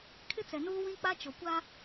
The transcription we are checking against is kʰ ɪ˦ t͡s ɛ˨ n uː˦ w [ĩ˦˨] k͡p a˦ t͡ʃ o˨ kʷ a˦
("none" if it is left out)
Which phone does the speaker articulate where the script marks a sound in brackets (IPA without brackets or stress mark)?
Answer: ĩ˦